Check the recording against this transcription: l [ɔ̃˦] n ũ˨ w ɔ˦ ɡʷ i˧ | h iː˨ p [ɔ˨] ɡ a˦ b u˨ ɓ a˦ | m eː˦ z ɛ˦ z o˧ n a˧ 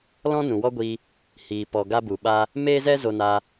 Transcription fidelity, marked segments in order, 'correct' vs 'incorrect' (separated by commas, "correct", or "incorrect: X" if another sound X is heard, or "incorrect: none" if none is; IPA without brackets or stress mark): correct, correct